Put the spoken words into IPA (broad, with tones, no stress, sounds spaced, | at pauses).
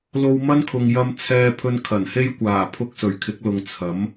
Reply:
l o˧ w m ɐ˥ n kʰ ʊ˨ ŋ j ɐ˧ m t͡sʰ ɛː˧ pʰ ɵ˧ n kʰ ɐ˨˩ n h e˥ j kʷ aː˨˩ pʰ ʊ˧ k̚ s ɵ˨˩ ɥ kʰ ɪ˨˥ k̚ l ʊ˨ ŋ t͡sʰ ɐ˨˥ m